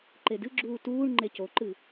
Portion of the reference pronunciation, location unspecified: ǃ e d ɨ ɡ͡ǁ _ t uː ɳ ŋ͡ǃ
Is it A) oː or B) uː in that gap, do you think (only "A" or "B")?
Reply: B